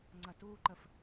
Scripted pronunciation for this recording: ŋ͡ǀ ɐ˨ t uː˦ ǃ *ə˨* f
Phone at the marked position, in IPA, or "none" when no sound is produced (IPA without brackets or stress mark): ə˨